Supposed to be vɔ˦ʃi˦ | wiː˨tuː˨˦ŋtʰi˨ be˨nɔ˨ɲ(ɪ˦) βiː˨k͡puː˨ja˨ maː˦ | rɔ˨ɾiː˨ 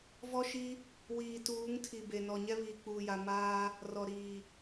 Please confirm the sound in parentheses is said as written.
no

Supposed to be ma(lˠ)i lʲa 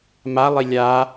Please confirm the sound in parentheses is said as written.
yes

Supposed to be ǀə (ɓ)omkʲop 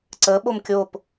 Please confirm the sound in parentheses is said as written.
yes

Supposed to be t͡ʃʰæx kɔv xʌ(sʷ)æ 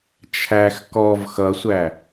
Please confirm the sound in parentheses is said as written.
yes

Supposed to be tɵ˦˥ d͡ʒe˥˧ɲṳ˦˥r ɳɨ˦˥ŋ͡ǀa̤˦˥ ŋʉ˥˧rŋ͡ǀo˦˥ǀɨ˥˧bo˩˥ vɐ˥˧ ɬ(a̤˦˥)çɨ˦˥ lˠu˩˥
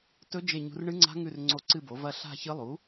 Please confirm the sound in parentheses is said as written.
no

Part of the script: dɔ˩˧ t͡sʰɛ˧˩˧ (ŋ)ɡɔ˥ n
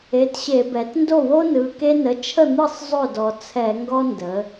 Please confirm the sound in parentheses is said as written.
yes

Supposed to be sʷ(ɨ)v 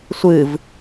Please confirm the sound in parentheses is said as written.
yes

